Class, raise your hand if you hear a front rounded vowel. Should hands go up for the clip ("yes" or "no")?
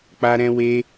no